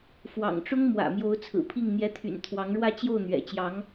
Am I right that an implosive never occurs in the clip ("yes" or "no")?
yes